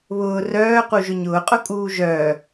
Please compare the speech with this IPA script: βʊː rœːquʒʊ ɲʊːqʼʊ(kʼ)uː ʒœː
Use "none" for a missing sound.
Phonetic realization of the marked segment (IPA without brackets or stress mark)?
kʼ